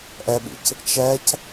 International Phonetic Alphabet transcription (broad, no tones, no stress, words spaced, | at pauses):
ʔɛɓḭc | t͡ʃɛc